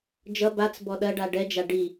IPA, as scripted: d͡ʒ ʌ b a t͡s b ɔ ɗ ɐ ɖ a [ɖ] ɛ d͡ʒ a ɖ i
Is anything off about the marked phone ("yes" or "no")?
no